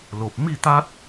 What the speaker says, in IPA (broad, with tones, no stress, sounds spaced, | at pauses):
l o˨ p̚ m i˥˧ t̪ a˦ t̚